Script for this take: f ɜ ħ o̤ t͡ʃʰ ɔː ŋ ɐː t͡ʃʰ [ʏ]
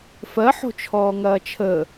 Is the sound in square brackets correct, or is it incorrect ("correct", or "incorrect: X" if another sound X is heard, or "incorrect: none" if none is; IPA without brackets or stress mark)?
incorrect: ə